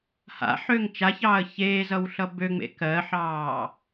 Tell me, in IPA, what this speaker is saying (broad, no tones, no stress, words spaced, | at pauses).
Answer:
ha̰ħøːŋ t͡ʃaçɑːə̯ çeːzʌwɬʌ bøŋ͡mḛ kɜħɑː